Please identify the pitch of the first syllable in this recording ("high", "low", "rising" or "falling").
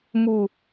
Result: low